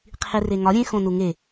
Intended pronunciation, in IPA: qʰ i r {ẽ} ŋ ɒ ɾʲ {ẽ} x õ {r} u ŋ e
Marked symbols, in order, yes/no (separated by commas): no, yes, no